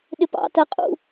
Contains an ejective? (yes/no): yes